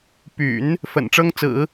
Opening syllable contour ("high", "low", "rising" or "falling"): low